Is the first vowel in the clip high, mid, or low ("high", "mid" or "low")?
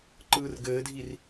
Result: high